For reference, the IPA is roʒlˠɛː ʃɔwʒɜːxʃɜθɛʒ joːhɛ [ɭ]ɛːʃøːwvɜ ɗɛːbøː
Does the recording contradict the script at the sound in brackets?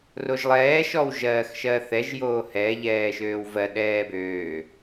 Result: yes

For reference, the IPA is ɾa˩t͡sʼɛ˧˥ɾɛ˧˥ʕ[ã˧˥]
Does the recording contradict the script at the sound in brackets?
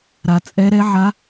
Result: yes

